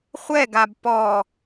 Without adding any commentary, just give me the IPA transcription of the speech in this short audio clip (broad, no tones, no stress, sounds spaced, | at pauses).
χʷ ɛ ɡ a b p ɔ